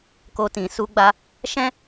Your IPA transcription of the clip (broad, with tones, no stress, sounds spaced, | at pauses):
k o˧ t ĩ˨ s u˧ ɡ͡b a˧ | ʃ ɛ̃˦